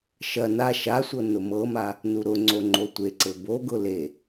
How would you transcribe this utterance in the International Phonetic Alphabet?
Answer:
ʃɐ na ʃasʷɤ nʊmɤma | nuɾʊŋ͡ǀo ŋ͡ǃotʷeǀɘ boɡʊ le

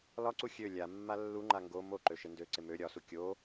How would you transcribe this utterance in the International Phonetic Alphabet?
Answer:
lɒǀu xʲø lʲa mːalːuŋ͡ǃa ŋɡo moǃø ʃɪndøǀɪ mø ɾʲɒsu kʲo

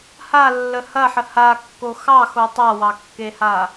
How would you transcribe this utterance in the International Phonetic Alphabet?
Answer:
halːə hɐħə hakːo xɑxo tˤawɑkːeha

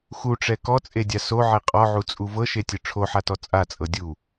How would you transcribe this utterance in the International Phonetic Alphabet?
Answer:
xuʈ͡ʂɛ kɔt͡sʼedʲa soʕe qʼɔʕut͡sʼu vɤʃetʲɯ ʈ͡ʂʰoħatɔ t͡sʼat͡sʼɤ dʲu

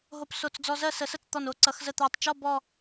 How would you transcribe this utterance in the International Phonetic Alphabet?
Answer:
ɦo˧p so˧˩t͡s d͡zɔ˧zɜ˥˨ sə˨˩˦sə˥˨t͡st̪ɔ˧˩n o˧˥˧ǀʌ˨˩˦xzə˥˨ t̪æ˧˩tˤt͡ʃɔ˥˨ bɔ˧˩

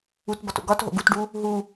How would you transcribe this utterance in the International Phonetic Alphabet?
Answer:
ut bɒto̰ɡɒtɦo̰ ɡutɖu | ɦu

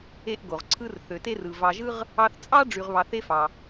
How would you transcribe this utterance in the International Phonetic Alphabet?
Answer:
e˦ʔɡo˩ʁ ǀʰɯ˦rθø˩te˥rɯ˩ vɑ˨ʒɯ˥ʁ | ɑ˥θ t͡sʼɑ˥ ɖ͡ʐy˨ʁβɑ˨θ e˦fɑ˩

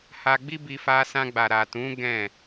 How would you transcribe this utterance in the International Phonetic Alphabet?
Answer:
ha˧ɡ͡bi˦bi˧ fa˧sã˧ɡ͡ba˨ ɾa˨tũ˨˦ ɡɛ̃˦˨

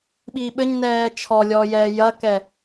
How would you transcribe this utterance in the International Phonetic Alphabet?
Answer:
ɓiːɓɘɲnɛː t͡ʃʰɔlʲɔːjɛː jɐkɛ

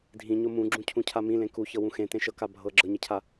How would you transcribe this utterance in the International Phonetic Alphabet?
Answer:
dʱĩɲo mũɡ͡ǁũcʰũcʰa mĩlẽ kuçɤwũ xẽtẽʃɤka bʱɤ ɡ͡ǁɤɲecʰa

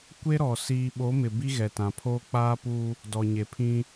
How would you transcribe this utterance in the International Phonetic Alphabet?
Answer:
kʷe˦ɾɔ˨ siː˨ɓo˨˦mɪ˨ bi˦ɣɛ˨tã˨pʰoː˦ k͡paː˦puː˦ | dɔ˨ɲe˨pʰĩ˦

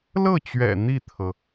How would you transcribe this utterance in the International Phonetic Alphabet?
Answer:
lɤ˥˩t͡ɕɥɛ̰˨˩ n̪i˥˩t̪ʰɤ˩

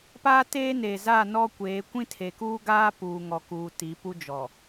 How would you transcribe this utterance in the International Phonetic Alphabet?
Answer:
paː˦teː˦neː˨zaː˦˨ nɔ˦kʷeː˨˦ kʷĩ˦tʰe˨kuː˦ɡaː˦ puː˨ŋɔ˨kuː˨ ti˨˦pu˦ d͡ʒɔ˨

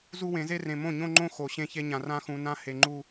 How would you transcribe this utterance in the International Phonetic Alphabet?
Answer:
zu˦wẽ˨˦ze˦rẽ˨ mõ˦˨ɲõ˦ŋ͡ǃõ˦ xo˨ ɕẽ˦çe˦ɲã˨ rã˦xũ˨ nã˦ he˨ŋ͡ǃu˦

